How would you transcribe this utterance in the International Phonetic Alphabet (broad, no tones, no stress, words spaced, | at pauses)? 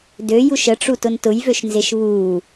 døjuʃ əʈ͡ʂutʊn tʊjvøʃnzeʃ βu